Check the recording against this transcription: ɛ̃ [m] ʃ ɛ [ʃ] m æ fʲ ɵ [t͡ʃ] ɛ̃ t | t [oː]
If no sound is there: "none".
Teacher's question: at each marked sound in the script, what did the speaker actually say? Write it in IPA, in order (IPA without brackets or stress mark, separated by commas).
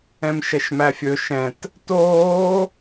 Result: m, ʃ, ʃ, oː